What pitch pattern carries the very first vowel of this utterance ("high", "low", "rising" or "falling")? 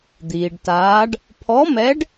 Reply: low